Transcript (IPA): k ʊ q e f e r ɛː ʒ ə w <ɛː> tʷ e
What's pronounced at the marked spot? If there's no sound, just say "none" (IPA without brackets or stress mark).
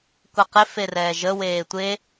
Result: eː